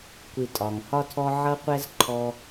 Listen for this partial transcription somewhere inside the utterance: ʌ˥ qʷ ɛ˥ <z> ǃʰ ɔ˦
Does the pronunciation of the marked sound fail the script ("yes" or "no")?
no